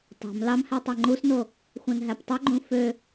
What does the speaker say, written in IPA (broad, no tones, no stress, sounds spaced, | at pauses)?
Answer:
tˤ ɑ̤ m l ɑ m h ɛ tˤ ɛ ŋ͡ǃ u s n o | xʷ ɛ̃ n ɦ æ p tˤ œ ɡ͡ǃ ũ f ø